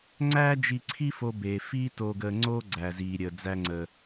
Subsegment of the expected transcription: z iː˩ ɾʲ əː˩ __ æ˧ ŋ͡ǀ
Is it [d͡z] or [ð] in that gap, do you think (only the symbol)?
d͡z